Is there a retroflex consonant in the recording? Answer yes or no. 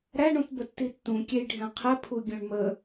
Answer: yes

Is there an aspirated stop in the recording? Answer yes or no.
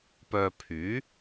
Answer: yes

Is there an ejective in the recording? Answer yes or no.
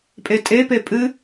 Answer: yes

